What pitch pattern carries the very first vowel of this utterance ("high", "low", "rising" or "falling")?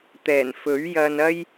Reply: low